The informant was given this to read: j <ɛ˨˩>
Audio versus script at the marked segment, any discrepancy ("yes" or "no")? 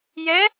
yes